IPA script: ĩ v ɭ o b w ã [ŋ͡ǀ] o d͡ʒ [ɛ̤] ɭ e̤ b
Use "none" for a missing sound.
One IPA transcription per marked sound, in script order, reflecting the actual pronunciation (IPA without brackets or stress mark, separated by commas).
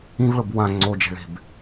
ŋ͡ǀ, e̤